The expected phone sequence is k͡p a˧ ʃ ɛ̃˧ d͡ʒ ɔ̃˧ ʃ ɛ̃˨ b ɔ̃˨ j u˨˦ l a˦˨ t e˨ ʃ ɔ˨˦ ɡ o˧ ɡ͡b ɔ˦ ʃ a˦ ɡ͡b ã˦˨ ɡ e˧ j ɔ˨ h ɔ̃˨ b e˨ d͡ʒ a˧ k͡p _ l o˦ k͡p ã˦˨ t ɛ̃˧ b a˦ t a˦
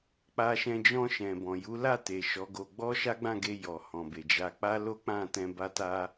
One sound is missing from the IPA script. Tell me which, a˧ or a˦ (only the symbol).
a˦